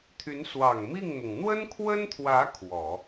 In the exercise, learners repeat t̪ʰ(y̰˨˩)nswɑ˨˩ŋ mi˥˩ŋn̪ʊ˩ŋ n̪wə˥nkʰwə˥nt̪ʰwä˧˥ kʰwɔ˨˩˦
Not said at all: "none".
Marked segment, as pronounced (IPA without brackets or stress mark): y˧˥